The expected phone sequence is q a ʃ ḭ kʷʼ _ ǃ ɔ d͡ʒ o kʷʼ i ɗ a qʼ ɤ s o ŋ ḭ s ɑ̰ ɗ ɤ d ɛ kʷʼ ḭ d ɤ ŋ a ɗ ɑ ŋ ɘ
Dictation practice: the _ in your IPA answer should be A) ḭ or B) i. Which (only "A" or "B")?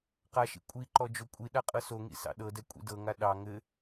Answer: B